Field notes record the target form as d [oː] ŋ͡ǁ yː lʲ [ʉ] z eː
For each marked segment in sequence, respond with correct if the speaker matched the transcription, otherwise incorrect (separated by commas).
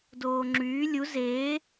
correct, incorrect